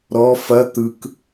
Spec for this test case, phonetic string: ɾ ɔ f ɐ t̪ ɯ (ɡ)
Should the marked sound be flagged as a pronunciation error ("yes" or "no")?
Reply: yes